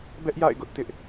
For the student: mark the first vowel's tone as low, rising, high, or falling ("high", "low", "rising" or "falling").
high